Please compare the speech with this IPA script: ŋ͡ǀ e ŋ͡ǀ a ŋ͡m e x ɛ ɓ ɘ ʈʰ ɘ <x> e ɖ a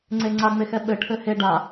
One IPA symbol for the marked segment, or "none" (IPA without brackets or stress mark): h